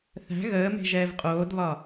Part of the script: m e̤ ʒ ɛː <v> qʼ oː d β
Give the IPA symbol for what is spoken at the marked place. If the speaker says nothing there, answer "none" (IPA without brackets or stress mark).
v